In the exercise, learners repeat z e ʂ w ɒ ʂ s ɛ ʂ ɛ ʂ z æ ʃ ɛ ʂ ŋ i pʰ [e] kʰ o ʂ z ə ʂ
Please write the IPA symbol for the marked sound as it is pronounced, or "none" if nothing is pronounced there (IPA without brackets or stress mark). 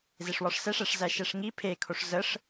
e